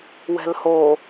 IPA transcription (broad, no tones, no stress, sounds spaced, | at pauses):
w ɛ̤ l h o